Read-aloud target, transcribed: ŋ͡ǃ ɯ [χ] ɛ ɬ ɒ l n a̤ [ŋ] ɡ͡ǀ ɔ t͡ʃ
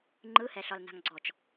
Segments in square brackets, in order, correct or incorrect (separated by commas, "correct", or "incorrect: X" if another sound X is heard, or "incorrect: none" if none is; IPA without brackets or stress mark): incorrect: h, correct